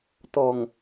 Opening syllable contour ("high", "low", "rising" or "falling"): low